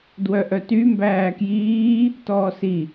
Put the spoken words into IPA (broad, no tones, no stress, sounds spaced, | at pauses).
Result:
d w œ ʔ œ t y m b æː k j iː | t ɔː s i